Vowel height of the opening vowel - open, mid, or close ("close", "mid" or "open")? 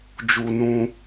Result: close